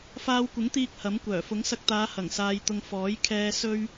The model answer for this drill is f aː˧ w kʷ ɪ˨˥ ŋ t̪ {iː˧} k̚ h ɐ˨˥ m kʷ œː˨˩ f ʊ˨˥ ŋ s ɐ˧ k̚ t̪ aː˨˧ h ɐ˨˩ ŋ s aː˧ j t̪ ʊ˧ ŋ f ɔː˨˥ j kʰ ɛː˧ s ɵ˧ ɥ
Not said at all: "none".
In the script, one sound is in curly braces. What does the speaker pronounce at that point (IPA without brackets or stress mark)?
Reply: iː˧